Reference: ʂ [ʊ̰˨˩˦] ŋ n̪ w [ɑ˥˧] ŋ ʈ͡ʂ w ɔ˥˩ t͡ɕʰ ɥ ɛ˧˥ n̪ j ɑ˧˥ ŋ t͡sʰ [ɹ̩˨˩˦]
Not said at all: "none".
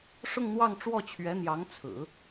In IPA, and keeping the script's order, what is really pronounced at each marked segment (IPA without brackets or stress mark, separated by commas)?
ʊ˥˧, ɑ˥˧, ɹ̩˨˩˦